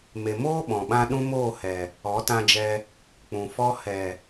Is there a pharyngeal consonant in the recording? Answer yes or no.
no